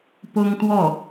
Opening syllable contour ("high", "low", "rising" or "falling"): high